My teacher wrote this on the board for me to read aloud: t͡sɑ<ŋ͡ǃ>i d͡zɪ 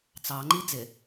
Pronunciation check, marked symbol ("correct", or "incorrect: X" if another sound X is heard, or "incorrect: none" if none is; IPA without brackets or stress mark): correct